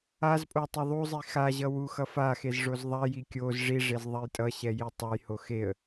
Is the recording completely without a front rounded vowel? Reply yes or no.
yes